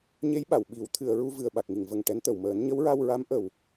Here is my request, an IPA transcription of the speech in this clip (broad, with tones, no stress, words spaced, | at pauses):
ɲe˧˥j ɓa˨˩˨wɓi˨˩˦w t̪ʰɨ˨˩˨ə̯ɹu˧ vɨ˨˩ə̯ɓa˨˩k̚ŋi˨˩˨ŋvə˨˩ŋ ʈɛ˧˥nt̪ə˨˩w məː˨˩˦nɲə˧˥wɹa˧w ɹa˧˥mʔə˨˩w